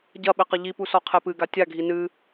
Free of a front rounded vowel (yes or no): yes